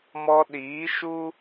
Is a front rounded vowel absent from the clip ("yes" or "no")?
yes